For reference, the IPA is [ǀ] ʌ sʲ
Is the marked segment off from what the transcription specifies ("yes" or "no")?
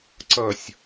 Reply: no